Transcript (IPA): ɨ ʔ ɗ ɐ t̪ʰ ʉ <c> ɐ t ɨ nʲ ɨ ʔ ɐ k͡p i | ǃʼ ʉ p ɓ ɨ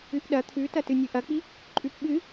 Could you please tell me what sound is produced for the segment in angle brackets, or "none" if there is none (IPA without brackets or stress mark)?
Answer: t